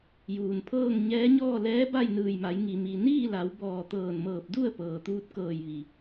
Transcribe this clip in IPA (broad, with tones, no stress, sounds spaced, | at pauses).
j uː˩ n pʰ ɤː˥˨ ŋ ɲ ɛː˧˥ ɲ ɔː˥˨ l ɛː˧˥ b a˥˨ j n ɯː˧˩ j m a˩˧ j ŋ i˩ m i˩ n iː˥˨ l a˩˧ w b ɔː˧˩ t̪ ɤː˧˩ n m ɤː˧˩ p̚ d u˥˨ ə̯ p ɤː˩ t̪ uː˧ t̚ k ɤː˧˩ j ʋ i˩